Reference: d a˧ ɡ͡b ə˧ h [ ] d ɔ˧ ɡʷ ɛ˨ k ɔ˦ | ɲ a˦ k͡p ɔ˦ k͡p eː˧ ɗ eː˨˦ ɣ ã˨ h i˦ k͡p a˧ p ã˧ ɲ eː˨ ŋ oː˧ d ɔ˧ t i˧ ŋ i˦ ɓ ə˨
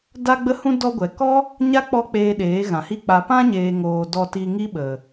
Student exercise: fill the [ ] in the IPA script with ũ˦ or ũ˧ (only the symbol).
ũ˧